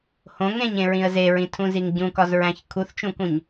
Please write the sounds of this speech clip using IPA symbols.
h õ ŋ ẽ ɲ ẽ ɹ ĩ ə̯ z e ɹ ĩ tʰ ũ z i ŋ ɟ ũ k ɒ z ɹ æ̃ ç kʰ u θ t͡ʃ ũ k ũ ɲ

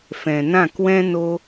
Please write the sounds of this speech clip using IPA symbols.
f ɛ̃˨ n ã˦˨ k w ɛ̃˦ n o˦

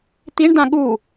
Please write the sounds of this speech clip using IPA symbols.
t̪ i ɳ d ã ɠ u

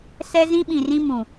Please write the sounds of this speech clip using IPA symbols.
s ɛ˦ z ĩ˦ ɓ ĩ˨ r ĩ˦ m ũ˨

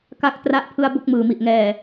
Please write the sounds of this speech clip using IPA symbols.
k a˥˩ k̚ t r a˦˥ ʔ pʰ ɯ˧ a̯ b o˥˩ k̚ m ɯː˨˩ m i˨˩ ʔ ŋ ɛː˨˩

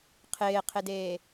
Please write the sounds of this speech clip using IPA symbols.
qʰ ɪː qʰ ɪ d eː

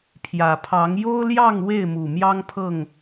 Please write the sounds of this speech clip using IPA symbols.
pʰ j ä˨˩ pʰ ɑ˨˦ ŋ j o˦ ʊ̯ l j ɑ˥˨ ŋ w e˥˨ ɪ̯ m u˨˩ m j ɑ˦ ŋ pʰ ɤ˥˨ ŋ

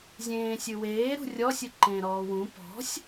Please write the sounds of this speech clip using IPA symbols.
zʲ ẽː sʲ ɨ w eː ɾ ṳ rʲ ɔ sʲ ɨ ǃ ẽː ɾ ɔː w ũ p ɔ̤ sʲ

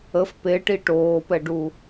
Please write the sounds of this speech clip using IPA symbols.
ə f p e ʈ i ʈ oː p ɛ ɖ u

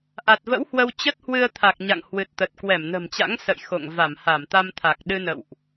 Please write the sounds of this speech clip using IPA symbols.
ʔ a˨˩ t̚ v ə̰˧˥ w h w ə˧ w t͡ɕ ə˦˥ t̚ h w ɨ˧ ə̯ t̪ʰ a˨˩ k̚ ɲ a̰˧˨ ŋ h w ɨ˨˩ t̚ t̪ ə˨˩ t̚ k w ɛ˧˩ m n ə̤˨˩ m t͡ɕ a̰˧˥ ŋ s ə̰˧˨ j x o̰˧˨ ŋ v a˧˩ m h a˧˩ m t̪ a˧ m t̪ʰ a˨˩ k̚ ɗ ɨ˧ n ə̰˧˨ w ʔ

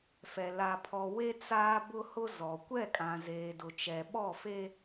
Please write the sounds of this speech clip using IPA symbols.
f ɛ˨ l a˨ pʰ ɔ˨ w e˦ t͡s aː˦ b ʊ˦ h ʊ˦ z ɔ˨ kʷ ɛ˦˨ kʼ ã˨ z eː˨ d ʊ˨ t͡ʃ ɛ˨ ɓ ɔ˦˨ f e˦

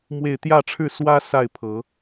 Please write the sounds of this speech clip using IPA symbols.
m w e˥˨ ɪ̯ t̪ j ä˥˨ ʈ͡ʂʰ ɻ̩˥˨ s w ä˦ s a˥˨ ɪ̯ pʰ ɤ˨˦

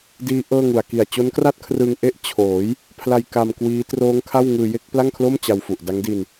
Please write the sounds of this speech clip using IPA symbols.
d iː˦˥ ʔ ɤː˥˩ ŋ u˨˩ a̯ k i˨˩ a̯ t͡ɕ o˦˥ n k r a˥˩ t̚ kʰ r ɯ˧ ŋ ʔ e˥˩ ʔ t͡ɕʰ oː˩˦ j | pʰ l a˧ j k a˧ m k w iː˦˥ t r oː˦˥ ŋ kʰ a˥˩ w ŋ ɯː˧ j e˥˩ k̚ p l a˥˩ ŋ kʰ l o˥˩ m t͡ɕ a˧ w f u˨˩ ʔ d a˦˥ ŋ d i˧ n

